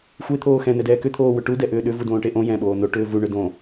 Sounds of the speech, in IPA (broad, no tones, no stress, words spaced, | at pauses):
xʷe t̪ʰoːxɛ̃ nɛdɛːkʏ t̪ʰoːwʏʈu dɛʔʏːɗʏ vudõːʈeʔõ jɛ̃ ɓoːno ʈʏːvu ɳʏdõ